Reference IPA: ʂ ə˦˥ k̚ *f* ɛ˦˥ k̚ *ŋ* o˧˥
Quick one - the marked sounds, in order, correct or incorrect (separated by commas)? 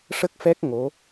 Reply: correct, correct